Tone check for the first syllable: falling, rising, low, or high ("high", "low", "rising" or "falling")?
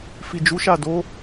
low